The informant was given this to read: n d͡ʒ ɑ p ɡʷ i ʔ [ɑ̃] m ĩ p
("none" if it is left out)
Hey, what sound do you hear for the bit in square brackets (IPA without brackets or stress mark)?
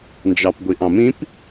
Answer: ɑ̃